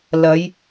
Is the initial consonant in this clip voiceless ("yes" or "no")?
no